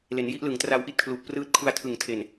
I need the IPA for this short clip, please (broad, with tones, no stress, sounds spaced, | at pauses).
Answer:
l e˩˦ n j i˦˥ ʔ l ɯ˩˦ ŋ t r a˧ w ʔ i˥˩ t̚ kʰ l u˨˩ ʔ p r ɯː˦˥ t̚ kʰ u˧ a̯ tʰ ɯ˨˩ ŋ tʰ e˨˩ n